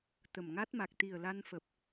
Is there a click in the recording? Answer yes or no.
no